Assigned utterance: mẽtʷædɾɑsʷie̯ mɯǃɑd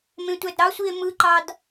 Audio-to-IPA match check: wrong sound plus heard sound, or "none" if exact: none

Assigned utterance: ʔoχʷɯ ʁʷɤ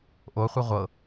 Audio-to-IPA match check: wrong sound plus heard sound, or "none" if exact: none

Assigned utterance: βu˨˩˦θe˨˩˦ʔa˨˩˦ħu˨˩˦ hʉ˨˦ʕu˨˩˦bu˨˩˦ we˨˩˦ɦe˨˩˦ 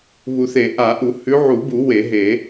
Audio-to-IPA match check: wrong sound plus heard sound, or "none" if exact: ħ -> ʔ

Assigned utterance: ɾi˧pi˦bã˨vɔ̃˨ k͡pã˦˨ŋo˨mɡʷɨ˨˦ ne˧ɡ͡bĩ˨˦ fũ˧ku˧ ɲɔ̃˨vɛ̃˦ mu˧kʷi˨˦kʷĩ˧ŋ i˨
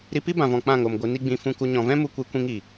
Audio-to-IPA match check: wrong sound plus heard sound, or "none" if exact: e˧ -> i˧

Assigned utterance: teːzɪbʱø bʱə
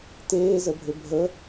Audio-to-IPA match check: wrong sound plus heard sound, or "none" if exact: ɪ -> ə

